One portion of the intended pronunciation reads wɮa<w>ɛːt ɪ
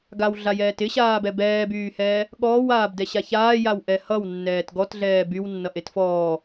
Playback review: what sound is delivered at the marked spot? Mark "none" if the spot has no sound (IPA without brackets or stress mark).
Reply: j